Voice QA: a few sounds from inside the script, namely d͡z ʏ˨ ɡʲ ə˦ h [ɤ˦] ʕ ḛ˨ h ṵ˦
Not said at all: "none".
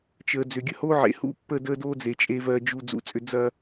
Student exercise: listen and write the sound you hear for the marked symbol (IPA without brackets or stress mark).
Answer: o˦